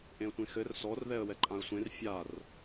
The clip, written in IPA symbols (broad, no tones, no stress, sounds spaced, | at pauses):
ʔ ẽ ə̯ tʷ ẽ x ɘ r s ɔ r ð ɛ ə̯ w ɛ ǃʼ ã ə̯ sʷ ẽ r fʲ a r